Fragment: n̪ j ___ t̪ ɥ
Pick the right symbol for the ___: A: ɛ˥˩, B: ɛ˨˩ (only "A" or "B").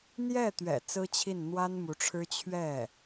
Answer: A